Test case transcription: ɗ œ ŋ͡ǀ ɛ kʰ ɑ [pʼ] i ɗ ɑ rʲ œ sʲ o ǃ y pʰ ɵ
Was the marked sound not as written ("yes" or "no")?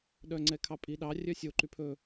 no